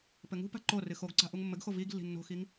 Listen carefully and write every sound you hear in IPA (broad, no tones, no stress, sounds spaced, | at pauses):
p ɘ ŋ ṳ p a̤ ǃ o r ɨ x o ɡ ǀ a̤ ʔ u ŋ mː ɘ ɡ x o v i ɡ lː i̤ nː o̤ x i ŋ